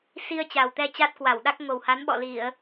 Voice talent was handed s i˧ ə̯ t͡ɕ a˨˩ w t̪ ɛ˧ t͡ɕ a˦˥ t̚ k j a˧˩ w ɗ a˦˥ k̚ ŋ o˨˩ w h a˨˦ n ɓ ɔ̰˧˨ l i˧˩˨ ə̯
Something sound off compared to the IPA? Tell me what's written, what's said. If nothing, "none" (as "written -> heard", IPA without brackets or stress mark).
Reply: j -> w